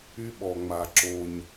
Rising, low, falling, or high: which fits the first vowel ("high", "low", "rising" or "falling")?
high